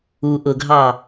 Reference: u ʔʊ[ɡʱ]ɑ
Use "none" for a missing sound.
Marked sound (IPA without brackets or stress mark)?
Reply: ɡʱ